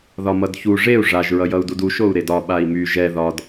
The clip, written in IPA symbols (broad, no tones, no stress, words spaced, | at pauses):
ðɒmʌdçu ʐeu̯ ʐaʒ ɹʌjʌu̯dudu ʃou̯ɾedɒ ɓai̯my ʒɛ ðɒd